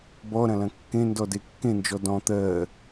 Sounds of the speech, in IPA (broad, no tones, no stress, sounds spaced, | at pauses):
b ɔ ɾ ɐ̃ l ɐ̃ kː ẽ n d ɔ d e kː ẽ n d͡ʒ ɔ d ɔ̃ t̪ ɜ